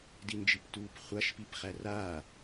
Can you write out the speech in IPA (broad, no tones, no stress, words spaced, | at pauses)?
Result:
dind͡ʒiptuːpχʷaʃ pipχæraː